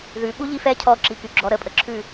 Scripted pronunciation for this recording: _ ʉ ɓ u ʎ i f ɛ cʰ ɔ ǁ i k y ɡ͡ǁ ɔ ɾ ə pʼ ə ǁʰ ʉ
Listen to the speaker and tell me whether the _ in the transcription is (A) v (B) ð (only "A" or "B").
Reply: B